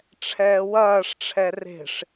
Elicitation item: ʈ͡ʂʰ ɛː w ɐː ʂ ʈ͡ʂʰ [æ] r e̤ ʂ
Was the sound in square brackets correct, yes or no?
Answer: no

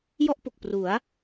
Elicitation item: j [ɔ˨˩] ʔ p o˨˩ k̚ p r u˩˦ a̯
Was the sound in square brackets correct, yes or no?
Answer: no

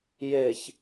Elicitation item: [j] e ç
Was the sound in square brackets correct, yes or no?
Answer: yes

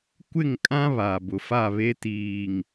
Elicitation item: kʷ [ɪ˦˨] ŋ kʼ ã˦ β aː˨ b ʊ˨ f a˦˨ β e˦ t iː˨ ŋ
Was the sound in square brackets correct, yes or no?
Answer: yes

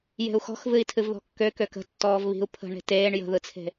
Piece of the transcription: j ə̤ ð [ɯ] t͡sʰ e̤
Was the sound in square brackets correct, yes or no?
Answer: yes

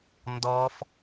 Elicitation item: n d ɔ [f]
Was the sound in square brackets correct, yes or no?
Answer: yes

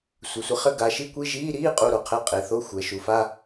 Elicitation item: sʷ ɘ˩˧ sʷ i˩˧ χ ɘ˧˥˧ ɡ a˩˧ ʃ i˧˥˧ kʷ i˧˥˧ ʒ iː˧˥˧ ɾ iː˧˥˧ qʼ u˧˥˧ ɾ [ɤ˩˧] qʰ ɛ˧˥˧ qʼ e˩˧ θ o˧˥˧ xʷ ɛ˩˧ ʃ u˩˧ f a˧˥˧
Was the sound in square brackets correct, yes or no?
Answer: no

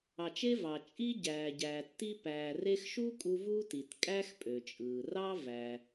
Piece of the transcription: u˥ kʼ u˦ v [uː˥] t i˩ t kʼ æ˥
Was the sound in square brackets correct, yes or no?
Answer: yes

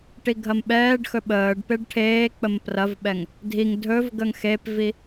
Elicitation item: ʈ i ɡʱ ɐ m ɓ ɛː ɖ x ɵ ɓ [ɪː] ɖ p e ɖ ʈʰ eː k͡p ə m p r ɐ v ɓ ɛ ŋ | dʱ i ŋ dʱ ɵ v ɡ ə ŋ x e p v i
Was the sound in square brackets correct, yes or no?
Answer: no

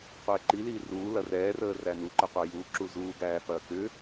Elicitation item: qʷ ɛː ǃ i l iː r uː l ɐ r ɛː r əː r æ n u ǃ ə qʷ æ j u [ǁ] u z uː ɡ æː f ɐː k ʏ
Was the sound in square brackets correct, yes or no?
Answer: yes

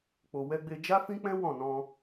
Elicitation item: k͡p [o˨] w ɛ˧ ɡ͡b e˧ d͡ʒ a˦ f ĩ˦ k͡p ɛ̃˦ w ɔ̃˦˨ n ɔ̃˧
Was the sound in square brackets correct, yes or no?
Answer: yes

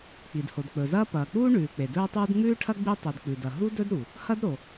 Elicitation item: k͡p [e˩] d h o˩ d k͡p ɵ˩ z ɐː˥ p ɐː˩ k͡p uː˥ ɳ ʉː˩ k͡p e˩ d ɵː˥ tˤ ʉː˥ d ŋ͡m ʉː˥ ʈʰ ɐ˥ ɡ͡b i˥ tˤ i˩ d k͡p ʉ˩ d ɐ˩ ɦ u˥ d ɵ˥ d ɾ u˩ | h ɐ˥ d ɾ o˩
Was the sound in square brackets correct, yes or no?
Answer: no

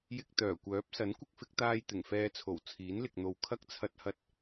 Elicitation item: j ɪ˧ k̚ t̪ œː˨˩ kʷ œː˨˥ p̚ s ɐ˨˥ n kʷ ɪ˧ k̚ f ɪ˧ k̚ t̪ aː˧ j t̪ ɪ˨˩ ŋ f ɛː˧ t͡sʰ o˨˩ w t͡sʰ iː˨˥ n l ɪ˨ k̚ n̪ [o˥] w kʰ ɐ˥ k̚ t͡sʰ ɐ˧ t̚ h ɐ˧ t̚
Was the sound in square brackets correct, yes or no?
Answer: no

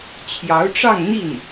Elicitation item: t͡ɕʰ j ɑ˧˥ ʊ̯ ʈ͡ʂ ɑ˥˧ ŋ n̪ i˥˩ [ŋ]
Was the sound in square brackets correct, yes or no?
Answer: no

